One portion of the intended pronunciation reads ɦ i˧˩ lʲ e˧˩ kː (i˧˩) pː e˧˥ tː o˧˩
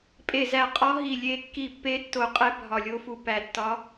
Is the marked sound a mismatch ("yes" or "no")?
no